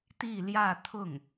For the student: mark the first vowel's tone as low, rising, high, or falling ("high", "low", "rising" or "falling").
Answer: falling